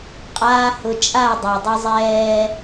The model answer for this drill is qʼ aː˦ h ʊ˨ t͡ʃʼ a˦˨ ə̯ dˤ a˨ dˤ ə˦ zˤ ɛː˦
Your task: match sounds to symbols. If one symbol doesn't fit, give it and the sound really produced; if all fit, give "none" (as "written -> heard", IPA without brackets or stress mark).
none